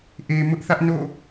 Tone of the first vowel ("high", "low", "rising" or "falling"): low